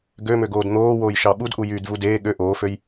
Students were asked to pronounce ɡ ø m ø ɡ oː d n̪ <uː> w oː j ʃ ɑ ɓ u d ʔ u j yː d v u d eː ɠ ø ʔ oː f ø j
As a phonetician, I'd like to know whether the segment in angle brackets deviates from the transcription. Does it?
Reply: yes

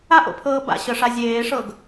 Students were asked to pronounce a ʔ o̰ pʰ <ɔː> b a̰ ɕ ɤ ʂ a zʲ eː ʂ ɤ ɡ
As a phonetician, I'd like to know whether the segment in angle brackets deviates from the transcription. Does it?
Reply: yes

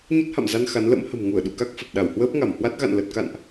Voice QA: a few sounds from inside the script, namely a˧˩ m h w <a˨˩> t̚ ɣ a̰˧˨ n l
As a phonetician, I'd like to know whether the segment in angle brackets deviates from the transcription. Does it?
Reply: yes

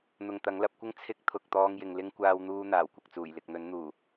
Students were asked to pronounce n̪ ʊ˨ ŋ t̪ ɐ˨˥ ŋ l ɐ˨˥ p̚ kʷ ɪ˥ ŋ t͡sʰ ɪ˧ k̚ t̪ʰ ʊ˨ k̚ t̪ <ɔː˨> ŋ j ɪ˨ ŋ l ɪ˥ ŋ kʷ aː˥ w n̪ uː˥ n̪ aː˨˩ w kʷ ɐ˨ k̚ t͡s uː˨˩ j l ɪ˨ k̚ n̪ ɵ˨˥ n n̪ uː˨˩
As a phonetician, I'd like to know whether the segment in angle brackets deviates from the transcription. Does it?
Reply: yes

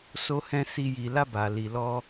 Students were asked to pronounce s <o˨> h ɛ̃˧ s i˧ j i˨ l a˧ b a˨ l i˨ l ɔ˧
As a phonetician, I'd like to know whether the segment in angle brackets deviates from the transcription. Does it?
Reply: yes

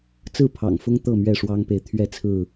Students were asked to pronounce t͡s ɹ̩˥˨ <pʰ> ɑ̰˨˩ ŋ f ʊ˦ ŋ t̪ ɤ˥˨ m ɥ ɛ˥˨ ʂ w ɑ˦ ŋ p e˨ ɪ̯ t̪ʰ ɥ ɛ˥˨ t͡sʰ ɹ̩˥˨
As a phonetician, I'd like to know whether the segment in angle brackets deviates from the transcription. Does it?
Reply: no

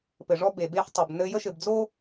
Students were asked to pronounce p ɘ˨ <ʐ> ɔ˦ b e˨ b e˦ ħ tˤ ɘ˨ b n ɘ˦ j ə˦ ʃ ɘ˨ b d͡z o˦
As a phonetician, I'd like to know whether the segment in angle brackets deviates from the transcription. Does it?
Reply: no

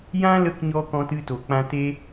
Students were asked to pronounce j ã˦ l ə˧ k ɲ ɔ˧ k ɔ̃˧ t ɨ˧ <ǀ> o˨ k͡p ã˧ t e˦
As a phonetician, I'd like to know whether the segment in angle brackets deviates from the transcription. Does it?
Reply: yes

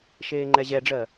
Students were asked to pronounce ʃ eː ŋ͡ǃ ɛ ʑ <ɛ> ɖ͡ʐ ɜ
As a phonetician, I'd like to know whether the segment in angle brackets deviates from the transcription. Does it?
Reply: no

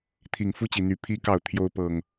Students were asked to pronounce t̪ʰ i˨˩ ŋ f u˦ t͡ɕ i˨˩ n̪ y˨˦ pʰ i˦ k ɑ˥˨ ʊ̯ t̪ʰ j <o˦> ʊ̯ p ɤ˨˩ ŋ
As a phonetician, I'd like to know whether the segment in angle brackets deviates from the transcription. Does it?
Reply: no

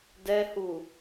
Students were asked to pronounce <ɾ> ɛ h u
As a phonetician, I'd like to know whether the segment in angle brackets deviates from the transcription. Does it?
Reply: yes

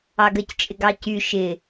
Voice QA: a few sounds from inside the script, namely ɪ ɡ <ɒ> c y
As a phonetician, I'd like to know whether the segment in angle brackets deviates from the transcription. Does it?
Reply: yes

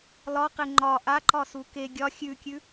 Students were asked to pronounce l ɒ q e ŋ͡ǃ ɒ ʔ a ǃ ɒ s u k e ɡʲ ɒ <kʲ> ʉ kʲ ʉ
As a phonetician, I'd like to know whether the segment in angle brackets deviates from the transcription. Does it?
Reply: yes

